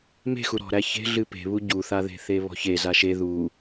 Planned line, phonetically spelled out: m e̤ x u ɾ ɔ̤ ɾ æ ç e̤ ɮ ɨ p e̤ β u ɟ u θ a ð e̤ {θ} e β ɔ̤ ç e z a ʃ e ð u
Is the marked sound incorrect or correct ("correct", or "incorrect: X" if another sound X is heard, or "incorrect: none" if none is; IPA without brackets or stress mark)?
correct